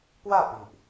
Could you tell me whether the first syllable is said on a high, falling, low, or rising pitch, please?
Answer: falling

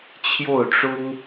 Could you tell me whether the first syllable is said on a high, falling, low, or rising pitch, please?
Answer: falling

